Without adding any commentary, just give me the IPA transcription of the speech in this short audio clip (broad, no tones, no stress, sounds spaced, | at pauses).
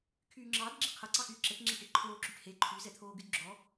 kʰ yː ŋ͡ǁ ɑː d ɡ͡ǁ e qʰ ɐ ǀ ɑ x yː ǁ ɛ ʈ ŋ͡ǁ ɛ ʈ e ǃʰ oː ǁ y ʈ h e ǃʰ y z ɛ t̪ʰ oː ɡ y d ɡ͡ǁ ɔ